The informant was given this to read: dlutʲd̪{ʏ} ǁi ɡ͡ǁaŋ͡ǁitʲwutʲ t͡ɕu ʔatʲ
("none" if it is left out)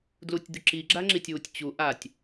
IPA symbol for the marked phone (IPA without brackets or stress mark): ʏ